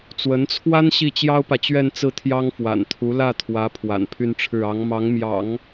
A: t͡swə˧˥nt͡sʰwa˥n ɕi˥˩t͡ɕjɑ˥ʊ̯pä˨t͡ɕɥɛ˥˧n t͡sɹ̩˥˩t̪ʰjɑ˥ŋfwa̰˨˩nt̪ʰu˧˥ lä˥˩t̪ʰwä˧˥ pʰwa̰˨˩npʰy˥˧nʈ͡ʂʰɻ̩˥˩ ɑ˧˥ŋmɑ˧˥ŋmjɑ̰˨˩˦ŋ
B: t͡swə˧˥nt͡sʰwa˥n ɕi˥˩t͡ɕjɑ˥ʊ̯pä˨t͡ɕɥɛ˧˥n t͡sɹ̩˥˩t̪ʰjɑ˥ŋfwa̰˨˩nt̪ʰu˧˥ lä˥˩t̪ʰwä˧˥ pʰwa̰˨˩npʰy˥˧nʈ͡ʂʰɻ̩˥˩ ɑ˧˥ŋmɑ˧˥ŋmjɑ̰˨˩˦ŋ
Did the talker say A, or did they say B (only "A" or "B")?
A